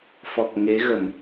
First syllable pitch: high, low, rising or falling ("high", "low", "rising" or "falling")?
low